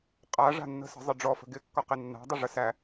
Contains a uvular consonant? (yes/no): yes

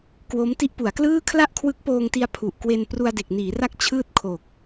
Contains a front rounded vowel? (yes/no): no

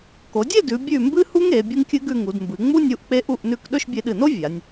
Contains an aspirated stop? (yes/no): no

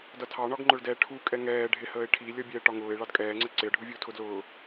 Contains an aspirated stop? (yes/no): yes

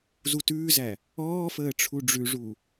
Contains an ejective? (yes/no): no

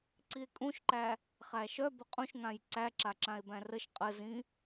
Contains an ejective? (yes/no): yes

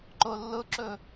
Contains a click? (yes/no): yes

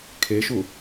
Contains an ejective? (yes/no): no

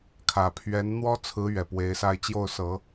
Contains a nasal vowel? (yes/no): no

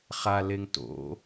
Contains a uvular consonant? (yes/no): yes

